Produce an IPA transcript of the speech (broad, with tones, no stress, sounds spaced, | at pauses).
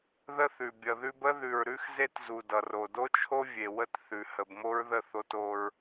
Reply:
ð ə˦ θ ʉ˨ bʲ ʌ˨ ð ʉ˦ b ə˦ ð ʉ˨ ɹ ɾ ʉ˦ x z e˦ t z u˨ d ʌ˨ r o˨ d o˦ t͡ʃʰ o˦ vʲ e˨ w ə˦ t θ ʉ˨ h ə˨ b m o˦ ɹ ð ə˦˨ θ o˦ t o˦ ɹ